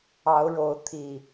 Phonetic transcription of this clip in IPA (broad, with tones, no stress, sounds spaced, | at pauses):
ɑ˨˦ ʊ̯ ɻ o˨˦ ʊ̯ t̪ʰ i˨˩